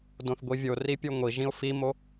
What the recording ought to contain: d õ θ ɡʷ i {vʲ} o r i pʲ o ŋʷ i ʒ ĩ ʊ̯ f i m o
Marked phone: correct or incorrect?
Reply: correct